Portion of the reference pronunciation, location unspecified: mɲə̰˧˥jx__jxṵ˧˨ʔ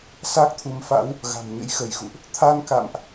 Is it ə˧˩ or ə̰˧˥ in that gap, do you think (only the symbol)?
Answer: ə˧˩